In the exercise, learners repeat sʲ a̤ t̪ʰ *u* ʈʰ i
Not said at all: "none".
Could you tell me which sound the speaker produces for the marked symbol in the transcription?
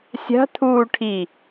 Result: uː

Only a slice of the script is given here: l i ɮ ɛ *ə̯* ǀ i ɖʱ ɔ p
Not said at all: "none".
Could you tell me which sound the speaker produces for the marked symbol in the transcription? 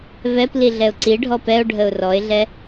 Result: ʊ̯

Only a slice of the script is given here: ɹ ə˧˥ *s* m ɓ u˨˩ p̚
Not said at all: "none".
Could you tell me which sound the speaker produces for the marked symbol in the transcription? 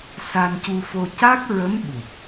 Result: none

